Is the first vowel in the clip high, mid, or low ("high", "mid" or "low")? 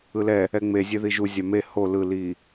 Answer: high